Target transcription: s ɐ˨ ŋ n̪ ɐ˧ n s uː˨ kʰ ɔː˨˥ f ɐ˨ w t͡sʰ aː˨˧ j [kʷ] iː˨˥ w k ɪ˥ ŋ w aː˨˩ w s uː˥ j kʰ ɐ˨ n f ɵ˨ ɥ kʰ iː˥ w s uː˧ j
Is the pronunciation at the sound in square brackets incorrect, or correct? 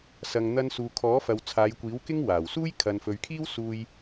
correct